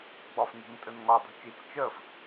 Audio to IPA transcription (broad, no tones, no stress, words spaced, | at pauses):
ɡ͡bɒfni̤ntʼənŋɒ dˤi̤t͡ʃit͡s t͡ʃɜf